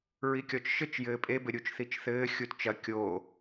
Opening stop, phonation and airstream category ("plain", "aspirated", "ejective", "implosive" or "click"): plain